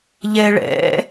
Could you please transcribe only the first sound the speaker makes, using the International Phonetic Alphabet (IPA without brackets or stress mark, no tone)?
ʎ